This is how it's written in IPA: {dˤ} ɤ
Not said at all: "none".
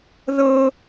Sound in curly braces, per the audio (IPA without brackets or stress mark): ð